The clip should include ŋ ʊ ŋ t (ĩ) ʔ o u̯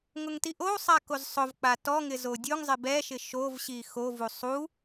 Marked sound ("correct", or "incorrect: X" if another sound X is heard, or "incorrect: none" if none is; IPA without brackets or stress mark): incorrect: i